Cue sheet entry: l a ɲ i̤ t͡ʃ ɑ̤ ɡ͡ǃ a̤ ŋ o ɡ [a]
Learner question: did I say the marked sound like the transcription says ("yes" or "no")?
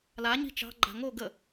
no